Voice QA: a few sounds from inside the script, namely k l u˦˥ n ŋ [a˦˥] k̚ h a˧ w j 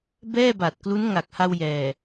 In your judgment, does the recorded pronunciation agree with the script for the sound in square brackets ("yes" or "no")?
no